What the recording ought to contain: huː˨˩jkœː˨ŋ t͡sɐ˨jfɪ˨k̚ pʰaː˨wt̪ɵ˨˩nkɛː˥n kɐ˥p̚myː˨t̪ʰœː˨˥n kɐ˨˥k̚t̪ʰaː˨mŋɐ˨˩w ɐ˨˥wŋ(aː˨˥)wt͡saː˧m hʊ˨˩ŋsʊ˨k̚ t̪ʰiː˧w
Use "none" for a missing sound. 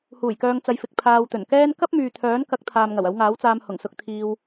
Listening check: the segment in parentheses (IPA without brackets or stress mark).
aː˨˥